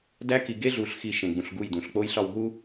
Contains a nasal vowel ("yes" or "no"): yes